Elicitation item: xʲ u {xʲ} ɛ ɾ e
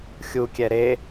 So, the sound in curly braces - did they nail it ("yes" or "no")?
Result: no